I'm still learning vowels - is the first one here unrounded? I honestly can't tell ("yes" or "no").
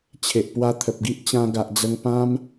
yes